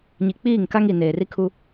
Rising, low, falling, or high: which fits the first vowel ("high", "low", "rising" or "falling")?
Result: low